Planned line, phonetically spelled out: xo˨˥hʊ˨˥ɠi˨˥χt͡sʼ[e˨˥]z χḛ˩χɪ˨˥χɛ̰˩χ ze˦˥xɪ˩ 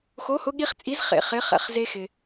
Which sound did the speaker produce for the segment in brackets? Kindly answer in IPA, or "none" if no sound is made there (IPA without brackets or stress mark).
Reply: i˨˥